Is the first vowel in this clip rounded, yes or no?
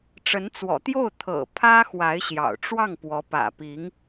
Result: no